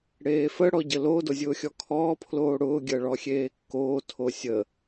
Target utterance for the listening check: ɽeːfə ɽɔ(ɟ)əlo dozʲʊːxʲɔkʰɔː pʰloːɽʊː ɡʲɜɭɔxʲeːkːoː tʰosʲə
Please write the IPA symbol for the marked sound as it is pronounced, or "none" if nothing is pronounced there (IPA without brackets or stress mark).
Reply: ɟ